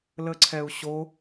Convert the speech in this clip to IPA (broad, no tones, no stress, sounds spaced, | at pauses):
l ə ǀʰ ɛ u̯ ɕ o